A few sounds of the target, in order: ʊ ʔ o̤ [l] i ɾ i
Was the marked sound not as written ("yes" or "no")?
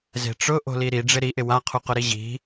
no